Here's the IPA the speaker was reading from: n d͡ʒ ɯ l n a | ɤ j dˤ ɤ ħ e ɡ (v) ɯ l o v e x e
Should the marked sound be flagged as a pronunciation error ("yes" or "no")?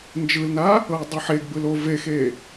yes